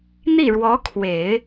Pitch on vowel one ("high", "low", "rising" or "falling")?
falling